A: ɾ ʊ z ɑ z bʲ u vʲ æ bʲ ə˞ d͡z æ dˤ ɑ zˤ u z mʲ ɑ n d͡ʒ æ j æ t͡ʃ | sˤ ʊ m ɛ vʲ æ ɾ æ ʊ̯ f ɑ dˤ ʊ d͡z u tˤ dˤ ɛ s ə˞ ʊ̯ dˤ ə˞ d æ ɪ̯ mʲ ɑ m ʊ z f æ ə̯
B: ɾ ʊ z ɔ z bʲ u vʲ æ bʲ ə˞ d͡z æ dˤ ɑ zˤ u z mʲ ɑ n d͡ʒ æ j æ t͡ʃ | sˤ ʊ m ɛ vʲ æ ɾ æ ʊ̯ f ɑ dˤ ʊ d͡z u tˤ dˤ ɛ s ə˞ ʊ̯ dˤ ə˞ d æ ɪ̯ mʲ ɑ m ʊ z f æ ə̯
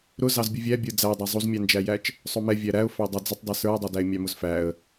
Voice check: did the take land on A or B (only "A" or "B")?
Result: A